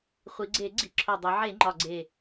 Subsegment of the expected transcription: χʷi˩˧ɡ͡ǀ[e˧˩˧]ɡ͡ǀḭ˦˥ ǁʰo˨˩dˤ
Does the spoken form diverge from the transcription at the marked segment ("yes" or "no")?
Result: no